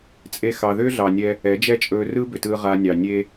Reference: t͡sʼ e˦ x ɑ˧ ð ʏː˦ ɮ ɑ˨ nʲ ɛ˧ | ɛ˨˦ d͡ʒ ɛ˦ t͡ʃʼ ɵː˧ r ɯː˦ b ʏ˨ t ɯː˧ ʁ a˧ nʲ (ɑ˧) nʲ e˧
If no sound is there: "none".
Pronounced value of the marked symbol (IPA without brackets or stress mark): ɑ˨